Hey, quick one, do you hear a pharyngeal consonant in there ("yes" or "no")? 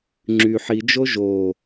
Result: yes